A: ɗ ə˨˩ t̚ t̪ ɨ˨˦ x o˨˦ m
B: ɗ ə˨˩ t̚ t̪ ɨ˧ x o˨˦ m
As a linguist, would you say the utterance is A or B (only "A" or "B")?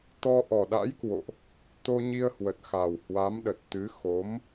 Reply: A